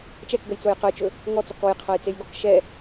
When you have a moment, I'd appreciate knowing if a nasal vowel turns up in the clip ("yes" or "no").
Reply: no